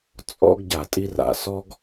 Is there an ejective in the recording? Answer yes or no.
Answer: yes